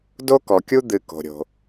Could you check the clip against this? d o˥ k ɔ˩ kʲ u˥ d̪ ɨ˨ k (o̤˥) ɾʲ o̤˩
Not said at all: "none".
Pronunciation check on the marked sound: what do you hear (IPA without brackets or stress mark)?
o̤˩